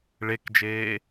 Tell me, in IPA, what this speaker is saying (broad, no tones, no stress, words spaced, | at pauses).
ɭekd͡ʒeː